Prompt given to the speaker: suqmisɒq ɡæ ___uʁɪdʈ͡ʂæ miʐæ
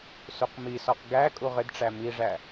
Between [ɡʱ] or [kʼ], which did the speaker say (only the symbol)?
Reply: kʼ